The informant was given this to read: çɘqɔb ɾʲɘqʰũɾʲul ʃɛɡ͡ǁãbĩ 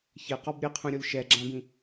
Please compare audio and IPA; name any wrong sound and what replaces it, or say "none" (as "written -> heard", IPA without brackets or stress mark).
none